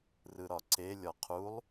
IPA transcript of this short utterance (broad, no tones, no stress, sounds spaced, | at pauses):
r ɯ ɾ ɒ ǀ e lʲ ɒ qʰ u lˠ